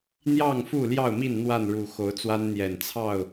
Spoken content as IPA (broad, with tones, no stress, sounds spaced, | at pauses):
n̪ j ɑ˥˨ ŋ f u˥˨ l j ɑ˥˨ ʊ̯ m i˥˨ n n̪ w a˥˨ n ɻ u˨˩ x o˨˦ ʊ̯ t͡s w a˦ n n̪ j ɛ˨˩ n t͡sʰ ɑ˥˨ ʊ̯